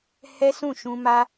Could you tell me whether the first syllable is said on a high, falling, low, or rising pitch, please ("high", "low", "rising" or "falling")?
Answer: high